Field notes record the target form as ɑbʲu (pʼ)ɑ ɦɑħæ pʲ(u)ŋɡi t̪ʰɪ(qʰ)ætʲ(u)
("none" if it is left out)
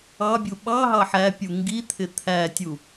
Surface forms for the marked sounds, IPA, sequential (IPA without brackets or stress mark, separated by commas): ɓ, u, t̪ʰ, u